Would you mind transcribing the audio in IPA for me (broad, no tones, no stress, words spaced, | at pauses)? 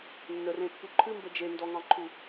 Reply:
nːərẽpːu ǃʰɨmbə d͡ʒendɔŋɑ̃ǃʰu